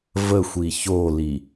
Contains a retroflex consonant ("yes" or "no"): no